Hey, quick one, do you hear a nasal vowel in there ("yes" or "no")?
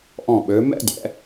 yes